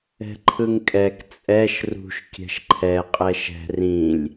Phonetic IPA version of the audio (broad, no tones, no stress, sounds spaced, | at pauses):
ɛ̤ ǃʰ ɯ ŋ kʼ ɛ k t͡sʼ ɛ ʃ r ṳ ʃ kʲ ɛ̤ ʃ ǃʰ ɛ qʼ ɛ ʃ ɛ̤ r ĩ lʲ